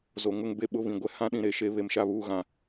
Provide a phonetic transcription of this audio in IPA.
z o˨ ŋ ʊ˦ ŋ b e˦ ɓ ʊ˦ β ĩ˨ ɡʷ ɛ˦ h ã˦ ɗ ĩ˨ ɾ e˨ ʃ e˨˦ β e˨ m ʃ a˦˨ β uː˦˨ ɣ ã˦˨

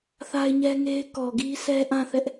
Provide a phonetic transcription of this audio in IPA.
θ a˦ ɪ̯ ɲ ɛ˦ ŋ e˦ ɪ̯ k ɔ˨ ɡ i˦ sʰ ɛ˦ ʔ ã˦˨ θ ɛ˦ ʔ

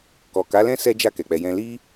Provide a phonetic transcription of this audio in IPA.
k ɔ˨ k a˨˦ l ɛ̃˦ s ɛ˦ d͡ʒ a˦˨ k ɛ˨ k͡p ɛ˨ j ɛ̃˧ l i˦

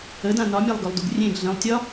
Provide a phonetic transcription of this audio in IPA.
ə d ã n ɒ mʲ a lˠ ɡ ɵ lˠ d u ɡ rʲ ẽ ɡ ɮ ə̃ lˠ tʲ ɒ

